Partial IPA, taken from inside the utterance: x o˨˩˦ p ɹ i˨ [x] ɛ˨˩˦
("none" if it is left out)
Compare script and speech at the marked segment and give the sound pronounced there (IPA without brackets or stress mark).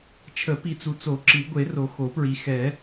x